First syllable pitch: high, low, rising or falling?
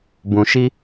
low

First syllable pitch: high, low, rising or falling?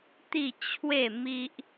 falling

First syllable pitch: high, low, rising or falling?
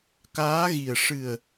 rising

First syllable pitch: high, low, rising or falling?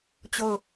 falling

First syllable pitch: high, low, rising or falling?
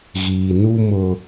low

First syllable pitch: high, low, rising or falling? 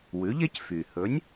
rising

